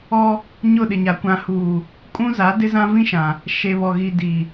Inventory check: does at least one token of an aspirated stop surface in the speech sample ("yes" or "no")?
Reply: no